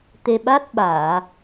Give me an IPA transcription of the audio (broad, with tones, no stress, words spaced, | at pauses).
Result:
t̪e˧ɓa˦˥t̚ ɓaː˨˩˨